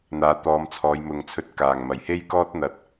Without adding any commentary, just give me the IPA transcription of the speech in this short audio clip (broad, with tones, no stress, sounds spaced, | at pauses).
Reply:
n̪ aː˨˧ t̪ ɔː˨˧ m t͡sʰ ɔː˨˧ j m ʊ˨ ŋ t͡sʰ ɵ˧ t̚ k aː˨˩ ŋ m ɐ˨˩ j h e˥ j k ɔː˥ t̚ n̪ ɐ˧ t̚